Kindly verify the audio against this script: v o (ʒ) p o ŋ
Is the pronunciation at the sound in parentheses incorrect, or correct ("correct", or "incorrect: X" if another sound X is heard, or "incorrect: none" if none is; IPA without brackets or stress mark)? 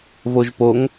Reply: correct